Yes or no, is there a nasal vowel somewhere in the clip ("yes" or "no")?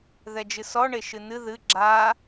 no